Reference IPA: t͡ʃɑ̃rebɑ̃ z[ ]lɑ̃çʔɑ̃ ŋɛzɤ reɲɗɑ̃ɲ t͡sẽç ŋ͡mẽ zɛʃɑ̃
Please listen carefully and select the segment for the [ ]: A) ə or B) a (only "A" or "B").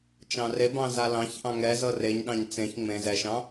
B